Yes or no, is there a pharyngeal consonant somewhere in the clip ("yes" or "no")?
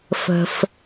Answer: no